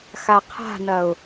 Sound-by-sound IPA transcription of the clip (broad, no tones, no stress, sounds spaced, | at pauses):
x a qʰ a̤ n ɐ ʊ̯